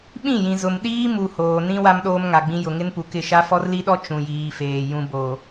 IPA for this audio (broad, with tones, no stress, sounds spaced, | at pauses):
ɓ ĩ˦˨ j ĩ˨ z ʊ˨ m ɗ iː˦ m u˨ h oː˨ n ĩ˦ w a˦ m ɗ oː˦ m ŋ a˨ ɡ͡b ĩ˦ j ʊ˨ ŋ ɪ˦ n p u˨ k ɪ˦˨ ʃ a˦ f ɔ˦ r l i˦ ɗ ɔ˦ t͡ʃ ũ˨ j iː˨ f eː˨ j ũ˨ b o˨